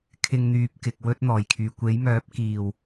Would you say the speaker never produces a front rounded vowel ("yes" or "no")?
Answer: no